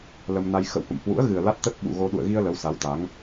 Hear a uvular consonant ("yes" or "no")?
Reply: no